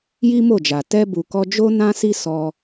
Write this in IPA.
j i˦ m o˦˨ d͡ʒ a˨ t ɛ˧ b u˨ k ɔ˧ d͡ʒ o˦ n ã˦ s i˦ s ɔ˧

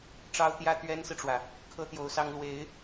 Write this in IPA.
ʈ͡ʂ ɑ˥ ʊ̯ t̪ j ä˥ t̪ ɥ ɛ˥ n s ɹ̩˨ ʈ͡ʂ w ä˩ | kʰ ɤ˥ t̪ j o˧˥ ʊ̯ s ɑ˥ ŋ l w e˧˥ ɪ̯

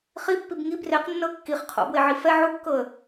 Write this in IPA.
χ i pː i b ŋ i b r e q nː ɤ kː i χ qʰ o̰ b w e ʕ i f ɛ ʕ u kː ɤ ə̯

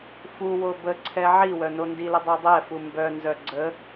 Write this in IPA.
f u w o b ə ǀʰ ɛ ʕ i w œ n o n d i l ə dˤ u dˤ ɛ f u m b œ n z œ ɡ͡ǀ ə

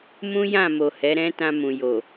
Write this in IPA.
m ũ˦ j ã˦˨ m o˨ h ɛ˨˦ ɾ ɛ̃˦ t ã˧ m ũ˨ j o˨

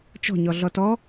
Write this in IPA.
t͡ʃ ɔ̤ ɲ ɔ ɮ ɔ t ɔ

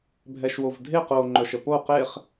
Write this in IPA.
bʱ ɛ ʃ w o v dʱ e q o ŋ͡ǃ œ ʃ ə p o q e χ

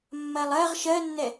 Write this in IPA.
mː ɜ lˠ ɜ ʁ ʃ ɜ nː ɛ

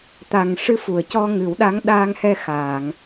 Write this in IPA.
t̪ a˨˩ ŋ ʂ ɨ˧˥ f u˨˩˨ ə̯ c ɔ˧ ŋ ɨ˨˩˦ w ɗ a˧˥ ŋ ɗ aː˧ ŋ h ɛ˧ x aː˨˩˨ ŋ

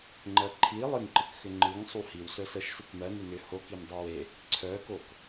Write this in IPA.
ŋ͡ǃ ɜ ǃʰ i lˠ ɨ ŋ ǃ ɨ k x ʏ ŋ͡ǃ ɨ ŋ sˤ u h i w s œ s ə ʃ s ɨ k m ɜ n ʏ n ʏ h o k i m dˤ e w e | ǀʰ œ k o k

